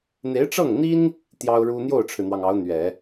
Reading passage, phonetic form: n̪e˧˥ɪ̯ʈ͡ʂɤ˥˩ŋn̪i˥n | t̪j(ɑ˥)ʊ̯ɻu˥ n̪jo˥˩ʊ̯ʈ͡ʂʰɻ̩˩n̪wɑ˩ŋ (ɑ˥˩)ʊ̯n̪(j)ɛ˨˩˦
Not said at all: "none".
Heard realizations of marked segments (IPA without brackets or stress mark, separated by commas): ɑ˥, ɑ˧˥, ɥ